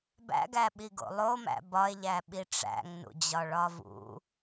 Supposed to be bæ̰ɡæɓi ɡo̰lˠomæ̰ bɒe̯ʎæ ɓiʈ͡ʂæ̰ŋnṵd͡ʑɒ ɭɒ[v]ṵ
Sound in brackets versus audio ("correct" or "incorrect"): correct